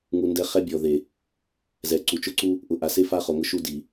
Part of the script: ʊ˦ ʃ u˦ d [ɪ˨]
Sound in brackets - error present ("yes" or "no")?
yes